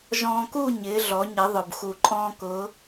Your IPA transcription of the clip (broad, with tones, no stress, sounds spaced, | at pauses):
ʒ ɔ̃ː˧ k uː˥˨ ɲ ɪː˩˧ ɮ ɔ˩˧ ɲ ɪ˩˧ ðˤ ʊ˩ b x u˩ ǃʼ ɔ̃ː˧ k ʊː˩˧